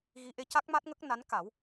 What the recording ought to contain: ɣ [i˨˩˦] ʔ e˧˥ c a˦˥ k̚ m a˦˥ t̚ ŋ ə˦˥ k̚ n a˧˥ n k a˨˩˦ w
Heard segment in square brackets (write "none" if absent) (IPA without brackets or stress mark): i˧˥